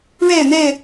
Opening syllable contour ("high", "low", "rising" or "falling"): falling